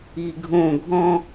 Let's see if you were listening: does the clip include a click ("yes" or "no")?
no